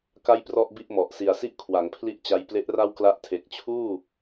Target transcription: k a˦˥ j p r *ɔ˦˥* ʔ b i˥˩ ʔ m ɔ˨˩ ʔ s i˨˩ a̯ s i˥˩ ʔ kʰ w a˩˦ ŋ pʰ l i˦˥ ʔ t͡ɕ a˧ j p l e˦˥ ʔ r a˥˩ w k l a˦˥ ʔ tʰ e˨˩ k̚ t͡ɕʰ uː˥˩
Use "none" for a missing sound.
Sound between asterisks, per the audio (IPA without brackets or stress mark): ɔ˥˩